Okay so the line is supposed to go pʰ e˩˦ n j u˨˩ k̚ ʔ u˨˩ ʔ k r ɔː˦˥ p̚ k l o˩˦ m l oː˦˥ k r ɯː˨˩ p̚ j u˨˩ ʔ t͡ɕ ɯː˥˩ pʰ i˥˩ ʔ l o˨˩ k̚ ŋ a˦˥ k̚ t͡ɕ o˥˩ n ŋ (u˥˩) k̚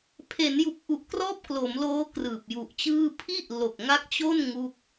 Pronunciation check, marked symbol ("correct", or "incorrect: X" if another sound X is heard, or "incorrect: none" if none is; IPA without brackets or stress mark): correct